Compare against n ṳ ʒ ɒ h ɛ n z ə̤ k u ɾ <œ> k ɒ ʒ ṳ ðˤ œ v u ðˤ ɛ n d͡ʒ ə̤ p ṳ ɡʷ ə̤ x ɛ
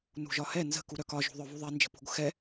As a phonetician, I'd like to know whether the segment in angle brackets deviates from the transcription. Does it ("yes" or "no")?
no